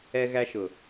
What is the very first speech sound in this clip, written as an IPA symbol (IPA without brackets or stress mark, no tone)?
ɛ